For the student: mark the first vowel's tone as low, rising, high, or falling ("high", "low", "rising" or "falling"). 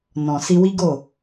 low